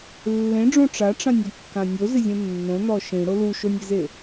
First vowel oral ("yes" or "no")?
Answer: no